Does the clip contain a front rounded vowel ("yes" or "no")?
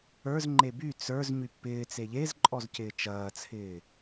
yes